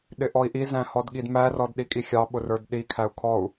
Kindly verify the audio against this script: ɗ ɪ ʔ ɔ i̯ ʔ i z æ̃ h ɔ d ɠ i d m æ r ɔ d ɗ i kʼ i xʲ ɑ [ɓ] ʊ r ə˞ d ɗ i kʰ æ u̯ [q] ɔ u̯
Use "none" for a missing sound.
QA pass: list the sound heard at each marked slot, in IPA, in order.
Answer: ɓ, kʰ

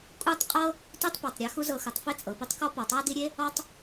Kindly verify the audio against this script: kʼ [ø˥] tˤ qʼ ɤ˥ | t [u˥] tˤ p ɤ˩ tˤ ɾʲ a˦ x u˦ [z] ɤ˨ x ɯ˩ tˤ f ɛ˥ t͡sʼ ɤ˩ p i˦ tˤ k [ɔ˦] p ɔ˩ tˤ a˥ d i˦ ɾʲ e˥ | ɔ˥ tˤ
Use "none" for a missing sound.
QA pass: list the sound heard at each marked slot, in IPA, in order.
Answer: u˥, u˥, z, ɔ˦

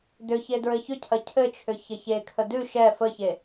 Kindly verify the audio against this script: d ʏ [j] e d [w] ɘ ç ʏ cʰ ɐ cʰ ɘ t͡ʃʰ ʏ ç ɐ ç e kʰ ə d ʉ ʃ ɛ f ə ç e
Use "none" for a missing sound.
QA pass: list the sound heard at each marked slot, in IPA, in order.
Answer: ç, ɹ

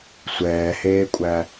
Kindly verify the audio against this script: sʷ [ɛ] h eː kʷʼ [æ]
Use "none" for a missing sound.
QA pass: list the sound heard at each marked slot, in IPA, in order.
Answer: ɛː, æ

